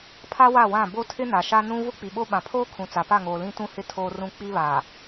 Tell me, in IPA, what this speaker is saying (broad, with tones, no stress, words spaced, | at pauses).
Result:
pʰa˦wa˦˨wã˦˨ bo˦tʰɪ˦na˨ ʃa˦nũ˦ vʊ˦k͡pi˨ɓo˦ ɓã˨pʰoː˦kʰũ˨ t͡sa˨pa˦˨ŋoː˨ lĩ˦tũ˦hɪ˦ tʰoː˦rũ˦ k͡pi˦βa˨